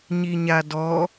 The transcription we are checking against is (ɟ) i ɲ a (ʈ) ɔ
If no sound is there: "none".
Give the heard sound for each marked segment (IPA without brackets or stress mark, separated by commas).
ɲ, d